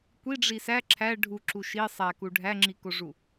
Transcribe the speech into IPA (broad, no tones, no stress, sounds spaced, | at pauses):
kʷ i ɖ͡ʐ i s æ ǁʰ æ ɖʱ u ǁ u ʃ i sˤ æ k u ɖʱ æ ŋ͡ǁ i k o ʐ u